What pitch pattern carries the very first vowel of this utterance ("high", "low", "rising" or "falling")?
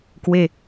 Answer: falling